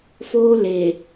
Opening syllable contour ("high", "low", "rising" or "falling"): high